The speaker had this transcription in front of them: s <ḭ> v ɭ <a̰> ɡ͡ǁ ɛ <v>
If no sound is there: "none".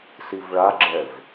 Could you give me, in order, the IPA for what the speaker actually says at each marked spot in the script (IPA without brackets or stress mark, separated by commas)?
i, a, v